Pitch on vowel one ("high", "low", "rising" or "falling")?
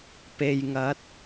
low